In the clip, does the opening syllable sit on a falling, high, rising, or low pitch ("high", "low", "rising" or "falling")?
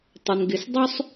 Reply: low